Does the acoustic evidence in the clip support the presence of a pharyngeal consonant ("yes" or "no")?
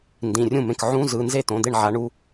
yes